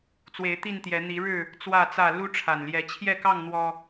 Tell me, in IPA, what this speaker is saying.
t͡swe˨˦ɪ̯t̪i˥˨nt̪jɛ˨˦ n̪i˨˦ɻɻ̩˥˨ | t͡swä˥˨t͡sä˥˨ lu˦ʈ͡ʂʰa˨˩nljɛ˨˦ t͡ɕʰjɛ˥˨kɑ˥˨ŋ n̪wɔ˦

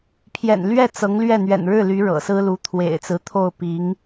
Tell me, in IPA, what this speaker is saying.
pʰjɛ̰˨˩nlɥɛ˥˩ t͡sɤ˧˥ŋlɥɛ˥˩ n̪ɥɛ̰˨˩nɻɻ̩˥˩ly˧˥ ɻɤ̰˨˩sɹ̩˥lu˧˥ t̪ʰwḛ˨˩ɪ̯t͡sɹ̩˧˥t̪ʰo˥˩ʊ̯ pi˧˥ŋ

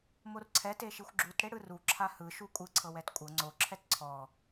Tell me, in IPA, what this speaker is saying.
morǀʰɛ teʃixʷɡ͡ǁut ɽeɽɯru ǁʰahɯ ʃukʷʼɯ ǀʰɤwɛtkʷʼɤ ŋ͡ǀo ǁʰɛtǀʰɔ

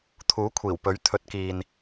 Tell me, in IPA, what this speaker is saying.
t̪ʰuː˨˥kʷʰiː˨˩wpɵ˨˥ɥ t̪ʰɵ˨˥t̚kiː˨n

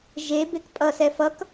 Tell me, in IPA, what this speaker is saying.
ʒe bekpʼʌsɛ fʌk

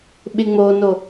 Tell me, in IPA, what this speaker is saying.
ɓɪŋ͡mono

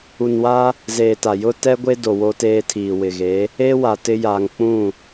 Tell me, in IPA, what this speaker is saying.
u˨nwa˦ | zeː˨ta˨ jʊ˦tɛ˦ɡʷe˦do˨ wo˦teː˦ tʰiː˨wɪ˨ɣe˨˦ | e˦wa˨ tɪ˦ja˨ŋ k͡pũ˦˨

